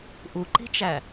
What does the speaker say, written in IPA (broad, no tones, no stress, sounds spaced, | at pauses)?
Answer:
ʔ u ǃ i̤ t͡ʃ æ